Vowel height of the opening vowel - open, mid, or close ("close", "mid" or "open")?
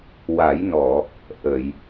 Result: open